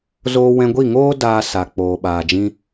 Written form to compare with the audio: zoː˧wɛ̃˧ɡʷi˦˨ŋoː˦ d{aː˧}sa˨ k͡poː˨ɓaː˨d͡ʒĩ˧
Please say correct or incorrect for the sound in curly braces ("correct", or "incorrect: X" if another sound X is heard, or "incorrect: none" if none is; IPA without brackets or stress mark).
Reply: correct